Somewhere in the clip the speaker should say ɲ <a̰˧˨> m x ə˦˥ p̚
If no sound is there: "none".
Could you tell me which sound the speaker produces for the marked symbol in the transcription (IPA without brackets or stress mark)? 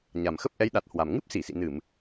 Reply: a˨˩